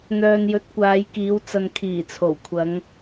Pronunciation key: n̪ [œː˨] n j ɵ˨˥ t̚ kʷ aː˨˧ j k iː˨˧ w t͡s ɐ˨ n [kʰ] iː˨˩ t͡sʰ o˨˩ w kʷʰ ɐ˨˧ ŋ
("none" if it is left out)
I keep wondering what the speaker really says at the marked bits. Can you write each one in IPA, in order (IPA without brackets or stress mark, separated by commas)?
œː˨, kʰ